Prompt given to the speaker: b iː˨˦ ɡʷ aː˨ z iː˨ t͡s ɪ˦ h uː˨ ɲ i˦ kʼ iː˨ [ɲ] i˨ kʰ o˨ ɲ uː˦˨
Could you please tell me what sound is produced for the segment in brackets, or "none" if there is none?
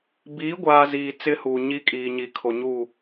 ɲ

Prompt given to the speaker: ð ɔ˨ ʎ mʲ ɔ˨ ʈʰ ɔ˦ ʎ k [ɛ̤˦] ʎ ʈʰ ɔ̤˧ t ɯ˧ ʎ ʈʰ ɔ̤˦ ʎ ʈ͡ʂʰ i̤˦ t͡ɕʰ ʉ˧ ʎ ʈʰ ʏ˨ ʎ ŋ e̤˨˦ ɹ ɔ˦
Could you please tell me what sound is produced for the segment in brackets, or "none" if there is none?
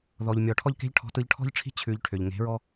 e̤˦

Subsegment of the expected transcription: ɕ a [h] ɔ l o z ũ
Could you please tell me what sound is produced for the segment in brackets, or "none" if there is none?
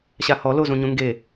h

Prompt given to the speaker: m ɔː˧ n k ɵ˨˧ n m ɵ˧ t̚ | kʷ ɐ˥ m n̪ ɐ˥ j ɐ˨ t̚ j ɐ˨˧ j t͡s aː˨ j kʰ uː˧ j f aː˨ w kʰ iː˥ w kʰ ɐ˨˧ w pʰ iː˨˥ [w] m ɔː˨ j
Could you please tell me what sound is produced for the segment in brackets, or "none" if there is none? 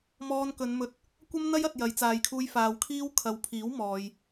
w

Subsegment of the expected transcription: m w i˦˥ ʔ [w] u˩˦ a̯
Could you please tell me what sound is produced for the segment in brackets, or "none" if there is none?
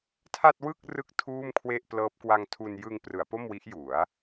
j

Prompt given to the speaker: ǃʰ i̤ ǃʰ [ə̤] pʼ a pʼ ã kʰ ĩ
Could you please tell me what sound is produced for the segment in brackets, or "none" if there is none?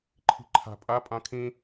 a̤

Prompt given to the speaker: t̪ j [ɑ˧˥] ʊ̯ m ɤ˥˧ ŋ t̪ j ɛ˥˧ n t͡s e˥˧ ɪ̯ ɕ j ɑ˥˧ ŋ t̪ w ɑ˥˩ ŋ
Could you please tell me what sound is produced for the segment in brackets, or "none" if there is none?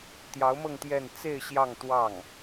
ɑ˧˥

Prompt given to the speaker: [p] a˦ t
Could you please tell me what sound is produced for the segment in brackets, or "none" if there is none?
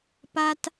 p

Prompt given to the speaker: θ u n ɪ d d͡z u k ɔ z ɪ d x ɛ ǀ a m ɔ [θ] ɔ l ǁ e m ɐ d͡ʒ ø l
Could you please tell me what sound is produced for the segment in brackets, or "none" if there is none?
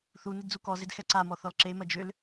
θ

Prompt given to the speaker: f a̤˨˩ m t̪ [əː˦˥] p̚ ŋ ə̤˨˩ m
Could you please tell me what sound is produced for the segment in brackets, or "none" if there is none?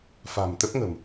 ə˦˥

